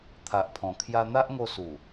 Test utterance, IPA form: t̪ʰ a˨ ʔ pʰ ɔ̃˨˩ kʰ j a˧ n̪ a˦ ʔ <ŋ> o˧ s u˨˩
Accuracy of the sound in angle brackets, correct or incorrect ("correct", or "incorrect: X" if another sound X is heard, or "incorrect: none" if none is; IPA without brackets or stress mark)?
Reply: correct